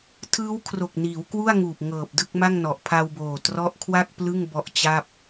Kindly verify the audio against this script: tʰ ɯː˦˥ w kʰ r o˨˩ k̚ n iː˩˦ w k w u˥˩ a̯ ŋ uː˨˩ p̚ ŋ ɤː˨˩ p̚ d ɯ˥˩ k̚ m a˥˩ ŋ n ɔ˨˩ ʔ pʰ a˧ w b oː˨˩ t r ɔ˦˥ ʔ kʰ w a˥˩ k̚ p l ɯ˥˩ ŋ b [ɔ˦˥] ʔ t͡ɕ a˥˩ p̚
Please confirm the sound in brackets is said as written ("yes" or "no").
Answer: yes